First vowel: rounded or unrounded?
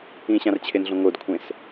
unrounded